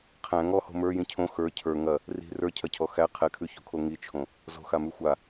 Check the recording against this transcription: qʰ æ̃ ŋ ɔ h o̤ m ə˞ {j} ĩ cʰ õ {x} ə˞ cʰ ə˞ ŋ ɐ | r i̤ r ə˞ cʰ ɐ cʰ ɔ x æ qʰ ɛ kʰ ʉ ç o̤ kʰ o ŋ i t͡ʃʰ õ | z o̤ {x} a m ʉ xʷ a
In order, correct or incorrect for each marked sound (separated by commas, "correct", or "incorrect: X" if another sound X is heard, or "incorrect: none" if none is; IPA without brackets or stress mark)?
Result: correct, correct, correct